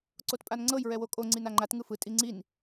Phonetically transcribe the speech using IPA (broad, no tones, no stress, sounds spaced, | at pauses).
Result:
ǀ o t pʼ a n ŋ͡ǀ ɤ j ɹ ɛ w o kʼ o ŋ͡ǀ i n a ŋ͡ǃ a t ŋ ɯ f ɯ tʼ i ŋ͡ǀ i n